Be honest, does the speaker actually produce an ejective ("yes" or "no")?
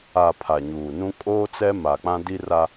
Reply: yes